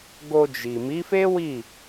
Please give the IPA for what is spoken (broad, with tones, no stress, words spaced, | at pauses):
ɡo˧d͡ʒi˨ mi˨˦fe˦wi˦˨